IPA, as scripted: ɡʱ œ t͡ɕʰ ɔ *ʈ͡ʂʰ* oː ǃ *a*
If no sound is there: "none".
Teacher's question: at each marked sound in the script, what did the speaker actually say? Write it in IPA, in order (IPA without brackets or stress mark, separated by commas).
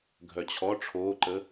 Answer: ʈ͡ʂʰ, ə